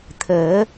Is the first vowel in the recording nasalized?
no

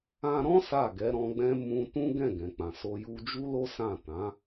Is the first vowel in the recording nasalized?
yes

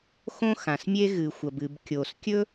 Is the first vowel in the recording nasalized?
yes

